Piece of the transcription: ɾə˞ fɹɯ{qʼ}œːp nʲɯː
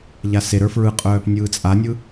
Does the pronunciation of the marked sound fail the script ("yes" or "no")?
no